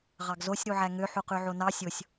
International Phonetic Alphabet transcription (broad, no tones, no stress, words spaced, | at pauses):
ʁɑɡzosʲ ɾuʕæŋø ħuqyʕonɑ sʲosʲ